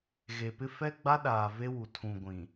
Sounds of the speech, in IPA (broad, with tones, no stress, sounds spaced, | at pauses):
ɣ e˨ p ɪ˦ f ɛ˦ ɡ͡b a˦ ɗ aː˨ v e˦ w u˨ tʰ ũ˨ ɡʷ ĩ˨